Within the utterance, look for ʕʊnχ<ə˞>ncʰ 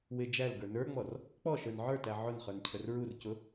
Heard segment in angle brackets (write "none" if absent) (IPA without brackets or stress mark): ə˞